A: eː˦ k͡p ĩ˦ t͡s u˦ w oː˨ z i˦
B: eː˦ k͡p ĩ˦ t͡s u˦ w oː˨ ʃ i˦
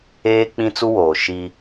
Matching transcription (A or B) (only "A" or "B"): B